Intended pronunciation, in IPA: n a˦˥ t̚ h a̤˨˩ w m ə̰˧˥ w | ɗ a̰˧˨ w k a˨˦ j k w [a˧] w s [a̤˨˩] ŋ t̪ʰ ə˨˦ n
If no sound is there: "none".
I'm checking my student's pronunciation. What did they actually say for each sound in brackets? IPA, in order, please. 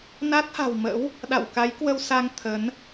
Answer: ə˧, a˧

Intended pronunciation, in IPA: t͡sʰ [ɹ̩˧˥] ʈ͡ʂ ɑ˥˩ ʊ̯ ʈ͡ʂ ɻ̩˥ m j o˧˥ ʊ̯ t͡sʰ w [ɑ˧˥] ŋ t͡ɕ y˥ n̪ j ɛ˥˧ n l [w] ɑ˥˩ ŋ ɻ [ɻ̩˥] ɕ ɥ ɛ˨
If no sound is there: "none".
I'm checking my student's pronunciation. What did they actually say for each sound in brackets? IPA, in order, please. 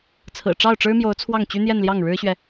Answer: ɹ̩˨˩, ɑ˥˩, j, ɻ̩˥

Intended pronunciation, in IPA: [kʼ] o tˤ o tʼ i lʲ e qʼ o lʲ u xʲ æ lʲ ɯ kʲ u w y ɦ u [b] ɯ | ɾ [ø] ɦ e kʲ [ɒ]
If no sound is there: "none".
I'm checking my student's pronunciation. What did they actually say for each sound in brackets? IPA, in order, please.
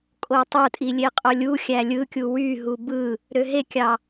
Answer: kʼ, b, ø, ɑ

